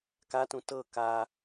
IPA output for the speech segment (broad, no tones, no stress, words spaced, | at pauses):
katũ tɤ ka